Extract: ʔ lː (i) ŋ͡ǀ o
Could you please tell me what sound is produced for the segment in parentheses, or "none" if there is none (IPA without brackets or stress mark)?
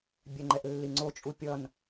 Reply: i